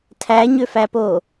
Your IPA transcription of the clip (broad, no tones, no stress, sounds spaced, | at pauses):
tʰ æ ɲ ø f æ p o